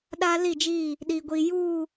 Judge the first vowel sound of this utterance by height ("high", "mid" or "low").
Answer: low